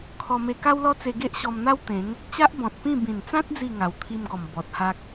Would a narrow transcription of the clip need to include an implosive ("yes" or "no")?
no